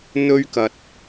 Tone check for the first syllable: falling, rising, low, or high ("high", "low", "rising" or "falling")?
high